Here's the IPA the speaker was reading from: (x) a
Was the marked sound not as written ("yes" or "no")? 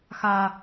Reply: no